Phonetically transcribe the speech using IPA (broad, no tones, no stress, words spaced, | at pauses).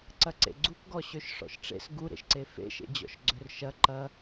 ǀɐǀḛɡ͡ǀukɡɔ ɕøʃʂɔ̰ʃʈ͡ʂḛs ɡuɾḛʃǀe fḛʃḛd͡ʑɔ̰ʃ ɡ͡ǀørʃɐ ǃɐ